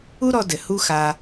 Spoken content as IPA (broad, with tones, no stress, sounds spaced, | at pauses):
u˦ ɾ ɔ˧ d ɘ˨ h u˦ x a˧